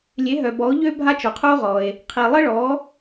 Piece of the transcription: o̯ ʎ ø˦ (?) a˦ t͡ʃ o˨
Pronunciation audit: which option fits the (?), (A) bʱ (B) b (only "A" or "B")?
A